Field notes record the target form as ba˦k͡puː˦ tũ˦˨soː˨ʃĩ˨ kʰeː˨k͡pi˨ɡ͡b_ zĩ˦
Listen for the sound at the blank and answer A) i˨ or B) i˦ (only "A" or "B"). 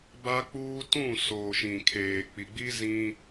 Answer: B